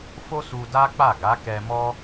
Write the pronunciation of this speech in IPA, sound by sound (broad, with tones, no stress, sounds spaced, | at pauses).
f o˦ s u˧ d a˦ k͡p a˦˨ ɡ a˨˦ k ɛ˧ m ɔ˦